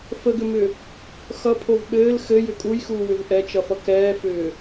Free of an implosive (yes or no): no